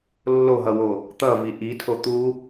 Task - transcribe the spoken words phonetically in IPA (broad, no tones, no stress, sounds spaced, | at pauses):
lː o ɦ ʌ w o | t̪ ʌ v i ʔ i tʰ o t̪ u